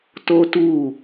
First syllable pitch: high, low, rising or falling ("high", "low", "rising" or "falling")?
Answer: high